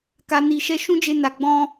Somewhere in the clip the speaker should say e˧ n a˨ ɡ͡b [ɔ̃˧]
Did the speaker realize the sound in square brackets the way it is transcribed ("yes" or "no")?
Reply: yes